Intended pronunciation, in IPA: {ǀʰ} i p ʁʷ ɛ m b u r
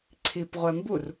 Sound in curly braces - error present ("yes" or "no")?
no